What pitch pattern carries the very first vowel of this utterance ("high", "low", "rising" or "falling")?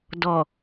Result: low